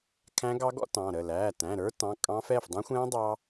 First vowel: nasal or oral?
nasal